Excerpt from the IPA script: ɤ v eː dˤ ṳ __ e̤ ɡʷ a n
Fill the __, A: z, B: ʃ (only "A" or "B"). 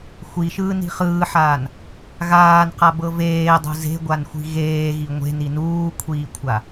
A